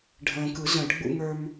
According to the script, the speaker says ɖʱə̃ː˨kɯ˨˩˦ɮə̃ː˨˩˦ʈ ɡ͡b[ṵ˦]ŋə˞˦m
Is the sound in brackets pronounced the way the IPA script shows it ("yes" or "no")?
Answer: yes